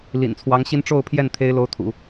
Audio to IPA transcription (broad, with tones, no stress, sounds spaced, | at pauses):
l ḭ˨˩ n t͡sʰ w ɑ˧˥ ŋ ɕ i˥ n ʈ͡ʂ o˥˧ ʊ̯ pʰ j ɛ˥˩ n t̪ʰ e˥ ɪ̯ l o˧˥ ʊ̯ t̪ʰ ṵ˨˩˦